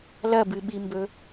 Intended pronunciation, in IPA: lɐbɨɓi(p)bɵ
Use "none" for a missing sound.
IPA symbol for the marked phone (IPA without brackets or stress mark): m